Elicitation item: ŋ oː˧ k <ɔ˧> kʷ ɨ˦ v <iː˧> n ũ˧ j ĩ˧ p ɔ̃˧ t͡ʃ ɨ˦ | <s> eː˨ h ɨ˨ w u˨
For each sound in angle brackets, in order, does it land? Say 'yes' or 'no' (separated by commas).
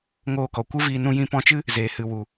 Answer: no, yes, no